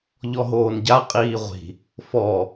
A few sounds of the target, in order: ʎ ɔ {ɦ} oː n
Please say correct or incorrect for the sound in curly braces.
correct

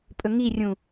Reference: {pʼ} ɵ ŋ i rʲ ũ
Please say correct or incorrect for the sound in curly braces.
correct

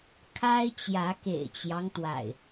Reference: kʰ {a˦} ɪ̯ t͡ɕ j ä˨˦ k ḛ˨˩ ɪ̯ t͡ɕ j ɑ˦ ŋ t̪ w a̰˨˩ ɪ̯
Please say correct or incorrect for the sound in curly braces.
correct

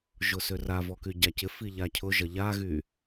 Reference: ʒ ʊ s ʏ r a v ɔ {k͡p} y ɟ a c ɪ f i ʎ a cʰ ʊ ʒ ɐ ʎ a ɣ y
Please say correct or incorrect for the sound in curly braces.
incorrect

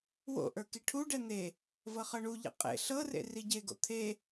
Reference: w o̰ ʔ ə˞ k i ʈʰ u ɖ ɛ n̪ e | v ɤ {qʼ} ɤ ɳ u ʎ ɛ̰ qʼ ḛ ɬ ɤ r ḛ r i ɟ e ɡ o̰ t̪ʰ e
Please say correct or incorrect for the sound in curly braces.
incorrect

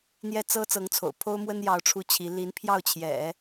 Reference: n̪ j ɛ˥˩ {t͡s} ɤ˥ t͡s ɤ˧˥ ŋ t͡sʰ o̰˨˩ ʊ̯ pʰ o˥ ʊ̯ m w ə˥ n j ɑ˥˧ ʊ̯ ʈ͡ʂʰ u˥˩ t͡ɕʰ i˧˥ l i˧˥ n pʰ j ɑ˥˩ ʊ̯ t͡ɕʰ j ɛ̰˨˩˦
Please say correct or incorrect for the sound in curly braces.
correct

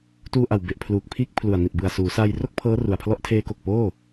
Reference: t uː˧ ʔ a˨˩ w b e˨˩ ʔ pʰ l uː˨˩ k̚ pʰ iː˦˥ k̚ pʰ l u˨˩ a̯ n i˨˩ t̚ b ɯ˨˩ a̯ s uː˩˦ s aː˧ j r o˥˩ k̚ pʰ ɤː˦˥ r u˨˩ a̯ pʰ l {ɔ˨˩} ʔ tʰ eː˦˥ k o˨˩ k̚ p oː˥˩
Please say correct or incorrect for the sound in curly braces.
incorrect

